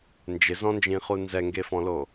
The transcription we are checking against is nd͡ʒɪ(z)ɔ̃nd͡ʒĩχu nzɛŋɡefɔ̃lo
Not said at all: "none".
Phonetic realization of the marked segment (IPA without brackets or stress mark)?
z